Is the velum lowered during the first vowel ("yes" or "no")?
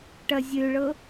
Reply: no